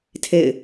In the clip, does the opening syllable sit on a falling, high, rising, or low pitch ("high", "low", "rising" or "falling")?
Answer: falling